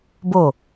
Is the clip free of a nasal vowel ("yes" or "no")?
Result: yes